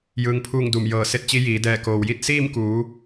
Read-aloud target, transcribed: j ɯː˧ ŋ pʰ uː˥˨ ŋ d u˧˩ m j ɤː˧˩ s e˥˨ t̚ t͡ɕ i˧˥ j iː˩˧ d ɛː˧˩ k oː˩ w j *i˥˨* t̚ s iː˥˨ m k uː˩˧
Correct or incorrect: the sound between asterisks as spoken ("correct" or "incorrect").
correct